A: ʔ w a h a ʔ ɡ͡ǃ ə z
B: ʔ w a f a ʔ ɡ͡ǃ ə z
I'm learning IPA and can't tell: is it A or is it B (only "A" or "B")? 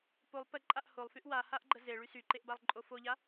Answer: A